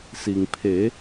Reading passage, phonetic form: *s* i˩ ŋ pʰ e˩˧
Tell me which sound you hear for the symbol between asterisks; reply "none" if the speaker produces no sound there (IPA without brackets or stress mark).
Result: s